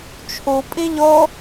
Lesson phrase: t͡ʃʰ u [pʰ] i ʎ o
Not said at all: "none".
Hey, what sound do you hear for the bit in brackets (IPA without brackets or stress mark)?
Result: pʼ